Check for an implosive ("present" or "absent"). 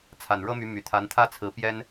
absent